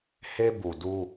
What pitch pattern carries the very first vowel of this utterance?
high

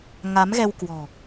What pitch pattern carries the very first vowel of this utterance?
rising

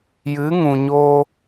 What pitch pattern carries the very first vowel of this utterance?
rising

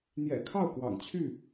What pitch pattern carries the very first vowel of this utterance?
low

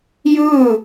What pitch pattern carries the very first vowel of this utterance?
falling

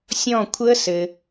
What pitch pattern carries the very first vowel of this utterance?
falling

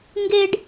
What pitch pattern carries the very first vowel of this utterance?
high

